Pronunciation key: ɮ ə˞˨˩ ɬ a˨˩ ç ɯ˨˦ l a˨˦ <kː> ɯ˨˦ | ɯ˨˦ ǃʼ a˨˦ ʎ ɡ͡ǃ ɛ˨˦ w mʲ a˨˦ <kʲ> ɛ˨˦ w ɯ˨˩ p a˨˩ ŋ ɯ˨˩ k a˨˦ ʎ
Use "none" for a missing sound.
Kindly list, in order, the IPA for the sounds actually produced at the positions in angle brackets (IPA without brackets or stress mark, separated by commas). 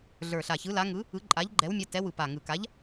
ŋ, t